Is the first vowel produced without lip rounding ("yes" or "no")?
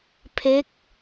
yes